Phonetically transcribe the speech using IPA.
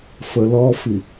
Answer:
f ə l ɔ f i

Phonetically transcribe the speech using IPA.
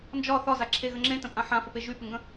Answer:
n d͡ʒ ɒ θ ɒ z a ǁʰ e ɣ ə ŋ͡ǁ ẽ t ə̃ pʼ ã ħ ã f ə p e ʒ y p ɪ ŋ ɡ ə̃

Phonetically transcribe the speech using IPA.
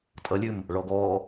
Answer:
tʼ ʌ lʲ ʉ m | ɭ ɔ ɡ ɔ

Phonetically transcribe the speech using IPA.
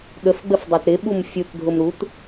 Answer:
ɠ ə f ɡ͡b ə f dˤ ɜ t ɾ ɪ ɓ u m fʲ u t dʱ ʊ m ɾ u t

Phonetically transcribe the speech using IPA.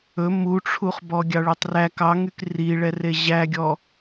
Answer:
ɵ m u ʈ͡ʂʰ u χ b ɔ ɡʲ ɑ ɭ y tˤ r æ k ɑ ŋ y k r i ɭ ɛ r e ʑ æ ɡʲ ɔ

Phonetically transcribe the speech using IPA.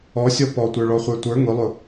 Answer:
ɔ sʲ ɔ p ɔ tʷ ə˞ ɭ ɔ χʷ ə˞ tʷ ə˞ ŋ ʊ lˠ ʊ

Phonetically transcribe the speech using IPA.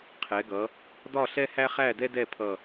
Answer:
qʰ ɛ˩˧ ɡ ʌ˩˧ | d ɒ˥˧ ɬ ɛ˥ h æ˥ χ æ˥˧ d ɛ˥ d ɛ˥˧ pʰ ʌ˧˩

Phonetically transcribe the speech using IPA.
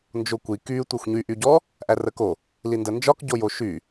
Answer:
n d͡ʒ o kʷ i k y tʷ æ xʷ ɲ y ʔ y ɟ ɔ | ʔ æ r ə k o | l i n d ə n d͡ʒ ɒ k ɟ o j o ʃ y

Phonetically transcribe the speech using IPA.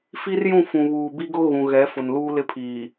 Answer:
f i˦ r j ũ˦˨ f ũ˨ β uː˨ b i˦ ɡ ʊ˦ ɣ ũ˨ ɣ ɛ˨˦ f ʊ˨ n l uː˦ l ɪ˦ pʰ iː˨

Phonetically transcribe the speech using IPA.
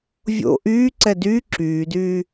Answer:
vʲ o̰ ʔ yː ǀ ɛ d yː ǁ yː d yː

